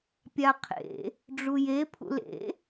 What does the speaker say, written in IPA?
pʲ a qʰ ḛ | ɖ͡ʐ u j e pʰ ṵ l ḛ

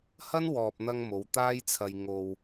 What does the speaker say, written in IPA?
h ɐ˥ n w ɔː˨ p̚ n̪ ɐ˧ ŋ m o˨˧ w t̪ aː˥ j t͡sʰ ɐ˧ j ŋ o˨ w

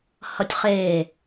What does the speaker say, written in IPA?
h ʌ tʲ χ e

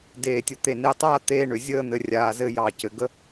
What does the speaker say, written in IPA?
d eː˧˩ tʲ ə˧ t̪ e˧˩ n e˧ tˤ aː˥˧ t̪ eː˥˧ ɳ ʏ˩˧ zʲ əː˥˧ n̪ ɘ˧ rʲ aː˧ z ɘ˥˧ j ɑ˧˩ c ɘ˩˧ ɡ ə˥

